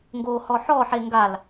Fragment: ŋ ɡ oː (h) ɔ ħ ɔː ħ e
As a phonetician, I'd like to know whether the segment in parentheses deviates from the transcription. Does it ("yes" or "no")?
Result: no